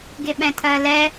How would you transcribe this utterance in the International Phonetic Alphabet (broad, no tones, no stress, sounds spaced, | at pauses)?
ɡ ɪ ɓ ɛ̃ tʰ ɜ l ɛ